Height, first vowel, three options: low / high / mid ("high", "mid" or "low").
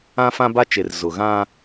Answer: low